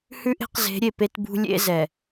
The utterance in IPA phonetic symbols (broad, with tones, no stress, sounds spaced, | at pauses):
h ʉ˦ ʔ e̤˦ q z e̤˨˦ ɾʲ e˨ p e˦ t b ṳ˦ lʲ ḛ˦ z ɛ˨